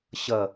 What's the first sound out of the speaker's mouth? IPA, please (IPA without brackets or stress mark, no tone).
ɕ